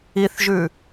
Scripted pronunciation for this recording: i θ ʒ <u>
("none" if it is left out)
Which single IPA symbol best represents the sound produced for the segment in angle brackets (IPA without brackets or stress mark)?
ʉ